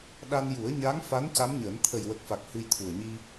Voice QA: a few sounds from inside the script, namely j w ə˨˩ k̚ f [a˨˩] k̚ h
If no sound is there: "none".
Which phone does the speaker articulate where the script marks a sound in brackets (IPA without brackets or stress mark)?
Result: a˨˩